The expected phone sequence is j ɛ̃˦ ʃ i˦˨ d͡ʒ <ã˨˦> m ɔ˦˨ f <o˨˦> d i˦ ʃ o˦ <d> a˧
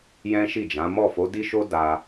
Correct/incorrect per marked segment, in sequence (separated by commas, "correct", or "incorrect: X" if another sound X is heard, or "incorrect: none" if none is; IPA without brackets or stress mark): correct, correct, correct